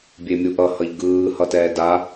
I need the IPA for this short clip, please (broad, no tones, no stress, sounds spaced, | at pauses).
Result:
bʲ e mʲ u ʔ ʌ h ʌ ʎ ɡ ɯː h ʌ t ɛː d a